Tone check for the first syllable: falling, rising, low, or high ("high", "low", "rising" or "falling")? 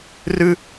high